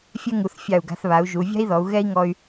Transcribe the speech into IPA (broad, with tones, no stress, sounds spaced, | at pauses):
fʲ ɛ˥ ŋ u˩˧ θ fʲ ɑ˧˩ u̯ ɡ a̤˧ θ β a˩˧ u̯ ʒ u˩˧ vʲ a̤˥ i̯ ð ɔ˩˧ u̯ ɣ ɛ˥ i̯ ŋ ɔ˧ y̯